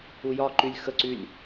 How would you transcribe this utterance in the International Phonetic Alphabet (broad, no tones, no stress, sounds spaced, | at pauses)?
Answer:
u j ɒ ǃ y lʲ x ə ǀ y lʲ